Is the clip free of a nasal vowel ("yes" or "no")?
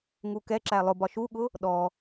yes